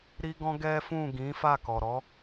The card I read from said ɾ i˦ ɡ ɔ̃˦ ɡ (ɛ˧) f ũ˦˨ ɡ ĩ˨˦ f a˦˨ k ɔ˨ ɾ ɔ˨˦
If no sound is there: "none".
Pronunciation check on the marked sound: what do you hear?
ɛ˦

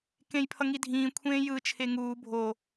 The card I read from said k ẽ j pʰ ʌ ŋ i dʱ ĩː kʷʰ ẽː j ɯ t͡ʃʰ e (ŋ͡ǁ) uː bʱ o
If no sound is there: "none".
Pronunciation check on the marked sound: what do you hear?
ŋ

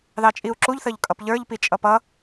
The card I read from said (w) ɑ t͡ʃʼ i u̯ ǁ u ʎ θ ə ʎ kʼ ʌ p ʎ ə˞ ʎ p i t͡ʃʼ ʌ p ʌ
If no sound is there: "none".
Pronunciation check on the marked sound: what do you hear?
ð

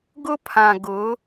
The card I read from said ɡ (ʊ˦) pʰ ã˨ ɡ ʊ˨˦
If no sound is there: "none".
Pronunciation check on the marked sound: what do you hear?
ʊ˦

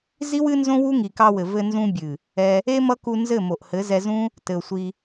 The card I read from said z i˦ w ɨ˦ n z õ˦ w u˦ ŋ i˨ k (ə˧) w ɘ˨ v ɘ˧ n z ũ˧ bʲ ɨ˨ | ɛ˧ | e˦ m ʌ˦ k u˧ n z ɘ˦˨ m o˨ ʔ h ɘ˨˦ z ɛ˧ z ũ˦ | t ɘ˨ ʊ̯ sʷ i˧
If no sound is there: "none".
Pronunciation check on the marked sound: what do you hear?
ɑ˧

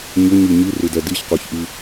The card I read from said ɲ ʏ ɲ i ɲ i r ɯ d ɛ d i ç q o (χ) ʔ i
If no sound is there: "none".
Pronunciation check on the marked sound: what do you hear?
ç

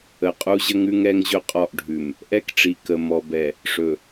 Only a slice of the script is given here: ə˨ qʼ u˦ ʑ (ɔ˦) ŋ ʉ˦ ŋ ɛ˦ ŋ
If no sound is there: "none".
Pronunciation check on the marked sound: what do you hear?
ə˦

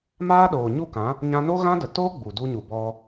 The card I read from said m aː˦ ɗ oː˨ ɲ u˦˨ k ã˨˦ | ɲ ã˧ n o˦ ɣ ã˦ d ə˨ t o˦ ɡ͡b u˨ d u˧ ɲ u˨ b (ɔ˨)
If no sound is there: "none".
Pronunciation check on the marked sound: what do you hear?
ɔ˧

